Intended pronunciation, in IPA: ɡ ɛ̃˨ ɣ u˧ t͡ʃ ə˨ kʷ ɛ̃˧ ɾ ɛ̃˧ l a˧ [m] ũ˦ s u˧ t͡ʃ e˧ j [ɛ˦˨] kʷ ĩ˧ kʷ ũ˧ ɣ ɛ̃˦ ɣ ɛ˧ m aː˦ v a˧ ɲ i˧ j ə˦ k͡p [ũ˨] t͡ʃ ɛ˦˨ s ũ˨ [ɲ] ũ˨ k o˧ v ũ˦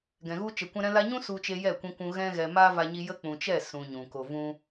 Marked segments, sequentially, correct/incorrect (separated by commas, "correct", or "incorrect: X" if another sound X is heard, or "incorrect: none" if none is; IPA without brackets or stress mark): incorrect: ɲ, correct, correct, correct